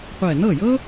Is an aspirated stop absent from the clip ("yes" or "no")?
yes